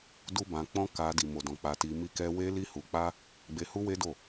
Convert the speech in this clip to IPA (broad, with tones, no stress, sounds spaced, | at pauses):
d u˦ b ã˧ k͡p ɔ̃˦ k a˧ d i˨ m o˨ d ɔ̃˨ k͡p a˧ t i˧ m i˦ k ɛ˦ w e˦ l i˦ h u˧ k͡p a˦ | ɡ͡b e˧ h u˦ w e˦ d o˦˨